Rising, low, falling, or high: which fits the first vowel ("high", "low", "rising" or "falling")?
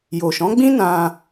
low